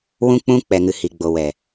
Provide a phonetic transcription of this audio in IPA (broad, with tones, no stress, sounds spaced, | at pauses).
w ũ˦ k͡p ũ˦ k͡p ɛ˨ ŋ ɨ˨ h i˨ ɡ͡b o˨ w ɛ˨